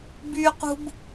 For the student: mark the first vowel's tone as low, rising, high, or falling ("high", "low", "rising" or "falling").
high